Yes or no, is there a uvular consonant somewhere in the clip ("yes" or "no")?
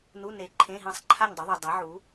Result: no